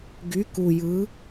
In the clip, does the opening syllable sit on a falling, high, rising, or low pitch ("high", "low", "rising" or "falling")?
rising